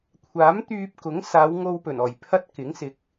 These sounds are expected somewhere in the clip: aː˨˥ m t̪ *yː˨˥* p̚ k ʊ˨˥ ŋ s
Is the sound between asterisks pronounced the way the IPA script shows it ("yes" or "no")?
no